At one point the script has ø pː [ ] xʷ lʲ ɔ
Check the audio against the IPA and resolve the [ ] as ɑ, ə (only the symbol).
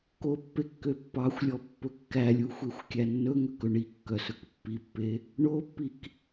ɑ